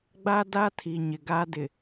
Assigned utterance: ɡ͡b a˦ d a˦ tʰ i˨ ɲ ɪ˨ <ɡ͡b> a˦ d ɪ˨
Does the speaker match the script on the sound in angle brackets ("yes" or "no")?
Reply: no